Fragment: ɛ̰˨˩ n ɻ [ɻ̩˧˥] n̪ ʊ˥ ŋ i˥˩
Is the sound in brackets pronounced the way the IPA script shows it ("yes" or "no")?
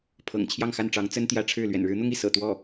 yes